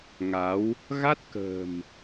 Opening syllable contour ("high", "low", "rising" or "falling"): rising